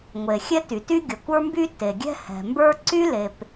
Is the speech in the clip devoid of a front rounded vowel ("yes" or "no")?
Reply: no